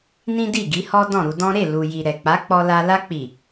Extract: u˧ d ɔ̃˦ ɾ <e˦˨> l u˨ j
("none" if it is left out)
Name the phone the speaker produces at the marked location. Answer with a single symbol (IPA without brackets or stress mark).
e˦˨